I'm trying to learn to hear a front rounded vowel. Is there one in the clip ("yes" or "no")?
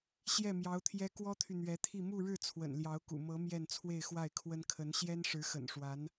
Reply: yes